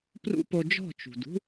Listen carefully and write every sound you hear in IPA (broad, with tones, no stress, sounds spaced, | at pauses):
p r ṵ˦ p o˧ d͡ʒ ɔ̤˦˨ t͡ʃ ṳ˨ d ṳ˦